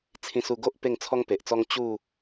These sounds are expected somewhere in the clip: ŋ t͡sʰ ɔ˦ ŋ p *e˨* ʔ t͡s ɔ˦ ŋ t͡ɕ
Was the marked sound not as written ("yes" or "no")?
no